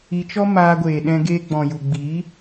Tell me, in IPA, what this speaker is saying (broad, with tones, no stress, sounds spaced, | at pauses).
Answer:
i˧ t͡ʃ ɔ˦ m aː˧ ɡʷ eː˨ ɗ ɛ̃˧ ɡ eː˧ ɡ͡b ɔ̃˨ j u˨ ɡ͡b i˨˦